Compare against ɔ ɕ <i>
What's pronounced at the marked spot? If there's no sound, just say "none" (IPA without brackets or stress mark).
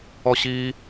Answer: i